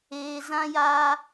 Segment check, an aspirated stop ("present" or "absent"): absent